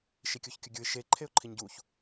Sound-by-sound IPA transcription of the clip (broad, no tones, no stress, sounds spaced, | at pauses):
ʃ i kʲ o ç kʲ ʊ ɡʲ u ɪ̯ ʃ e ǃʰ e ʊ̯ ǃʰ i ɲ ɟ u ç